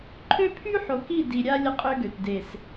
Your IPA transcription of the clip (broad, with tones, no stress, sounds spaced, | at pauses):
ǃʰ ø˦ pʰ y˦ ħ o˨ k i˦˨ d i˨ ɾʲ a˦ lʲ ə˦ qʼ ø˦ ɡ ø˨ t d e˨ s